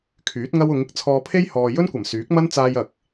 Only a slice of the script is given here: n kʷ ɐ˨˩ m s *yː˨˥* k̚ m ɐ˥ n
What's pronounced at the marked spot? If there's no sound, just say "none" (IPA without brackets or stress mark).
yː˨˥